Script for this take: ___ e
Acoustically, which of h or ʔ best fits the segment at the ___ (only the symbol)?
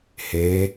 h